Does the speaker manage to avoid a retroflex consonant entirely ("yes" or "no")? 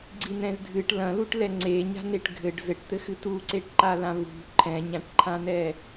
no